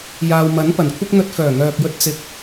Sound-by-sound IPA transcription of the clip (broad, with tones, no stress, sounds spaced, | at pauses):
j aː˨ w m ɐ˨˥ n p ɐ˨˩ n kʷʰ ɪ˥ k̚ n̪ ɵ˧ t̚ f œː˨˩ ŋ œː˨ k̚ j ɵ˧ t̚ t͡s ɪ˨ k̚